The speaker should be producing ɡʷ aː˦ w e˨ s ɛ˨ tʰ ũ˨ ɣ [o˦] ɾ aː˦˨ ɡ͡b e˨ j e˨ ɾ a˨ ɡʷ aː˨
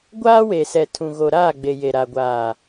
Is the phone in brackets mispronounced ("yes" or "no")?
yes